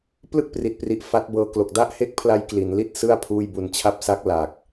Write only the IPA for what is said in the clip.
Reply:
p l ɯ˥˩ k̚ p r i˨˩ t̚ p r i˨˩ ʔ f a˦˥ t̚ b ɤː˧ k l o˨˩ k̚ d a˥˩ ʔ h e˥˩ k̚ pʰ l a˦˥ j k l i˩˦ n l i˥˩ t̚ s ɯ˥˩ a̯ pʰ uː˥˩ j b u˧ n t͡ɕʰ a˦˥ p̚ s a˦˥ k̚ l a˨˩ k̚

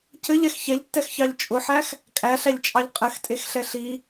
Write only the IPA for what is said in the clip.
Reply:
c ɘ ʎ ɛ x ç ɛ ʎ tː ɛ x ç ɑ ʎ t͡ʃʼ ʊ ħ æ x | kʼ æ ɬ æ ʎ t͡ʃʼ ɑ ʎ qʼ ɘ x tʼ e x ɬ ɛ ɬ i

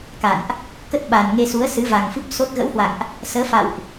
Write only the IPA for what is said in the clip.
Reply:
k a̰˧˨ n ʔ | k ə˦˥ t̚ ɓ a˨˩ n ŋ e˧ s u˨˦ ə̯ s ɨ˨˦ v a˨˩ ŋ f ɨ˦˥ p̚ s o˦˥ t̚ ɣ ə̰˧˥ w h w a̰˧˨ ŋ ʔ | s əː˨˦ f a̰˧˨ w ʔ

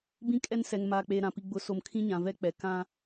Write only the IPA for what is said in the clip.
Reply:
b ĩ˦ kʼ ɛ˦ n s ɛ˨ ŋ m aː˨ k͡p eː˨ ɾ ã˨ p i˨ ɡ͡b ʊ˨˦ s o˨ m kʰ ĩ˦ ɲ ã˨ v ɛ˦ k͡p ɛ˨ k ã˦

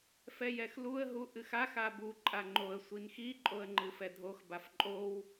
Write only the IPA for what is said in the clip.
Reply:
f ɛ j ɛ x l u ə̯ ɦ u ʔ ɨ x a x a b u ǃʼ a ŋ͡ǃ o ə̯ sʷ i n x i ǃʼ o ə̯ ŋ͡ǃ ɨ f ɛ dʱ o x b a f ǃʼ o w

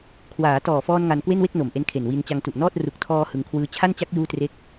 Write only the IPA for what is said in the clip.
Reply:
kʰ w aː˩˦ t ɔː˨˩ f ɔː˧ n ŋ a˧ n k w e˥˩ n w e˥˩ k̚ n o˨˩ m ʔ e˦˥ n kʰ e˨˩ n w i˧ n t͡ɕ a˧ ŋ t u˨˩ ʔ n ɔː˥˩ t̚ r u˨˩ k̚ tʰ ɔː˧ h ɯ˧ ŋ kʰ w ɯː˦˥ t͡ɕʰ a˥˩ n t͡ɕ a˦˥ k̚ j uː˥˩ t r e˥˩ k̚

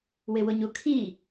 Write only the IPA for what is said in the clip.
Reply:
w ɪ w ʊ ɲ u kʰ i

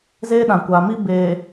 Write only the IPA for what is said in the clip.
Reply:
z eː˦ ɗ ã˨ kʷ a˨ m i˦ b eː˨

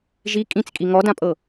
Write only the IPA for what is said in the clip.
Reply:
ʒ i kʼ ĩ t͡s kʼ i ŋ ɔ d ã pʼ ɤ

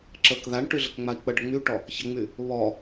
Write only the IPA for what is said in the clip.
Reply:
ǁ ə k ð a ɳ ʈ y ɮ ə k ŋ͡m a i̯ k͡p ə ɖ ə ŋ͡m y ʈ ɔ | ç ə ŋ͡m y | β ɔ

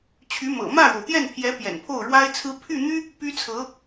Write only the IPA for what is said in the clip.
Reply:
t͡ɕʰ y˧˥ m ɤ̰˨˩ m ä˥˩ ɻ o˩ ʊ̯ t̪ j ɛ˥˩ n pʰ j ɛ˧˥ p j ɛ̰˨˩ n pʰ o˥˩ ʊ̯ ɻ w a˥ ɪ̯ t͡sʰ ɹ̩˥ pʰ y˥˩ n̪ y˥ | p y˥ t͡sʰ ɤ˧˥

